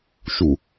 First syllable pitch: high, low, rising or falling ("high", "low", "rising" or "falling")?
low